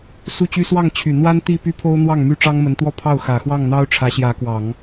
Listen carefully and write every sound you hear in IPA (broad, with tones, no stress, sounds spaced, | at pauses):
s u˥˩ t͡ɕ y˥ s w ɑ˥˩ ŋ t͡ɕʰ y˨˩ n̪ w a˥ n t̪ i˥˩ p y˥ pʰ o˥ ʊ̯ n̪ w ɑ˥˩ ŋ m y˥ ʈ͡ʂ ɑ˥ ŋ m ə˧˥ n t̪ w ɔ˥˧ pʰ ɑ˥˩ ʊ̯ x ä˨˩ x w ɑ˥˩ ŋ n̪ ɑ˥ ʊ̯ ʈ͡ʂʰ ä˧˥ ɕ j ä˧˥ k w ɑ˨˩˦ ŋ